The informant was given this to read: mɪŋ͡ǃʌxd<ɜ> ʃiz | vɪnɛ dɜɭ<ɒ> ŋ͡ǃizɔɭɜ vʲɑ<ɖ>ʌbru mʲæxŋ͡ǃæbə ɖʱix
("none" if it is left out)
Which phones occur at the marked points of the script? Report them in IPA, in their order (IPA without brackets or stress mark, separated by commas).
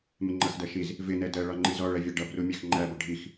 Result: ɜ, ɒ, ɖ